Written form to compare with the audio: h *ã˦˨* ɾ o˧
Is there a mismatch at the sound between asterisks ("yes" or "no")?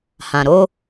yes